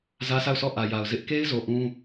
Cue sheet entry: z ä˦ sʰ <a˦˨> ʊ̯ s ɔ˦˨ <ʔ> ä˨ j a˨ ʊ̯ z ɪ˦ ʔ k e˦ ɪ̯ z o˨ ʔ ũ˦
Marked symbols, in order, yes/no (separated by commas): yes, yes